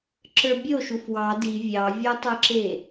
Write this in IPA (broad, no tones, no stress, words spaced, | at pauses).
ǁə˞bʲo ʃufwɑ di vʲɑvʲɔtˤə˞ǁe